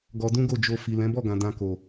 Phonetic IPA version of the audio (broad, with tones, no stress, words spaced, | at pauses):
ɡɔ˧dũ˦ɡo˦˨d͡ʒo˧ fi˨lɛ̃˨˦bɔ˦˨ɡã˨ dã˧ko˨